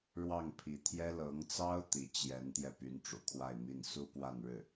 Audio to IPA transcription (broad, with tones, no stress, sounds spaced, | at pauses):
ɻ w ɑ˥˩ ŋ pʰ i˧˥ t̪ʰ j ɛ˥ l ɤ˧˥ ŋ t͡s ɑ˥ ʊ̯ t̪ i˧˥ t͡ɕ j ɛ˧˥ n t̪ j ɛ˧ p y˧˥ n ʈ͡ʂ ṵ˨˩ kʰ w a˥˧ ɪ̯ m i˥˩ n s u˥ p w a˥˧ n ɻ ɻ̩˥˩